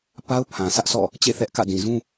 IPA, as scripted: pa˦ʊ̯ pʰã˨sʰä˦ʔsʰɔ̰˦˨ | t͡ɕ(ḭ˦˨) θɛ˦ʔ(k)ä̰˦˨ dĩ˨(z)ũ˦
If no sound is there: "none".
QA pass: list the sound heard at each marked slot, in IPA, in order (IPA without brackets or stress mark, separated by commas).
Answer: ḛ˦˨, k, z